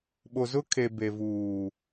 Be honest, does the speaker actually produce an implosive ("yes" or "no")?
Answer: yes